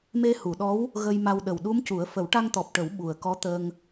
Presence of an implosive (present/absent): present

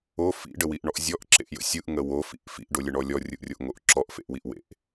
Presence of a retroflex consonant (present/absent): present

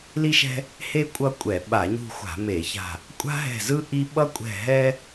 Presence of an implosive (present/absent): present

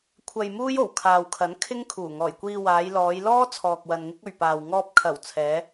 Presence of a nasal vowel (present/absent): absent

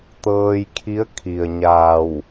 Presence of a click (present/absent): absent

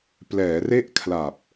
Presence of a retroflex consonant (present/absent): absent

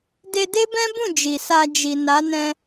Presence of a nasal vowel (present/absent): present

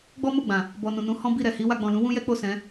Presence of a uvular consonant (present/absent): absent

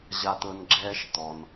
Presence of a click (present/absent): present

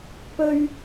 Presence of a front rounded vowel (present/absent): absent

